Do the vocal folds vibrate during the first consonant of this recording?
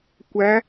no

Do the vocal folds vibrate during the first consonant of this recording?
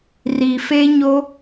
yes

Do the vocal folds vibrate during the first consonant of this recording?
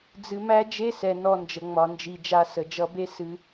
yes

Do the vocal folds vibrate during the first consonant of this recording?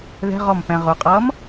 yes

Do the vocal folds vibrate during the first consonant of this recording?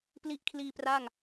no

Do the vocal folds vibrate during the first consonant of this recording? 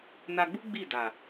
yes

